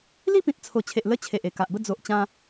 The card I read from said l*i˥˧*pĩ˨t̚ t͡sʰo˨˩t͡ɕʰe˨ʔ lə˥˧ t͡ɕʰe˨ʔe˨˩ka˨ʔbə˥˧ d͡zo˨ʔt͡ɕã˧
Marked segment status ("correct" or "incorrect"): correct